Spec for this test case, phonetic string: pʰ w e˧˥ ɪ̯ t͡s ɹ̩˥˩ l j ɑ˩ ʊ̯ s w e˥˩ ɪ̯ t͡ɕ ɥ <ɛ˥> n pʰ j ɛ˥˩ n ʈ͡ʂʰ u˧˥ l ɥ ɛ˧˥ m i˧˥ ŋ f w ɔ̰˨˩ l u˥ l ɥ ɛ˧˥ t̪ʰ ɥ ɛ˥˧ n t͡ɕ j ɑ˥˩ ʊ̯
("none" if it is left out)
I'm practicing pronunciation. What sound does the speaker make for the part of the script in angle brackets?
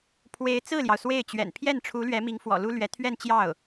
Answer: ɛ̰˨˩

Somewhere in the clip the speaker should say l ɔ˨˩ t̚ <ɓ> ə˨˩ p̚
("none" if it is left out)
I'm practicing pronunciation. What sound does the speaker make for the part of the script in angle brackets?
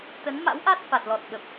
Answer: ɓ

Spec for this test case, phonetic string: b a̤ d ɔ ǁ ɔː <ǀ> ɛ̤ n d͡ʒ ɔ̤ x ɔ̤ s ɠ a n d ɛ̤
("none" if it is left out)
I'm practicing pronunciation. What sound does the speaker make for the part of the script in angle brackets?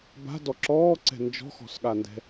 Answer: ǀ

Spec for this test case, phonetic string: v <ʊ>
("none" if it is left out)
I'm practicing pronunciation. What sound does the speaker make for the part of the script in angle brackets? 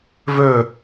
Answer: ɵ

